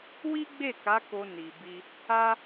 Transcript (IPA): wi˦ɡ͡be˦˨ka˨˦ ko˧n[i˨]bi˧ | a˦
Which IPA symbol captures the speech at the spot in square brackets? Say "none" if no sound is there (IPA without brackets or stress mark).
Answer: i˨